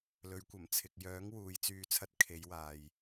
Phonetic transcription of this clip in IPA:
lɵ˨˧ɥkʷɐ˨˩mt͡sʰɪ˨k̚ jœː˨˥ŋ wuː˨˧jt͡syː˧t͡sʰɐ˥t̚ kʰe˨˧jwaː˨j

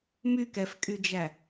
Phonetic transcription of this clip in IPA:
mykɛfkʼyd͡ʒæ

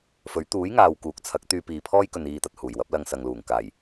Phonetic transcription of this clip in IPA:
fɵ˨˥ɥ t̪uː˨˥jŋaː˨w kuː˨˥k̚t͡sʰɐ˨˥k̚ t̪yː˧piː˨pʰɔː˥j kɵ˧niː˧t̪ɐ˨t̚ huː˨˩jwɐ˨˥p̚lɐ˧ŋ sɐ˨ŋluː˨˩ŋ kaː˨˩j

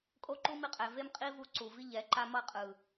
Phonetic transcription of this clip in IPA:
kʼo˦ǃu˦mi˧qʼɛ˨ ve˦mqʼi˦vu˧ ǀu˨vi˦ʎɛ˨˦ ǃa˦mʌ˦ qʼɯ˨

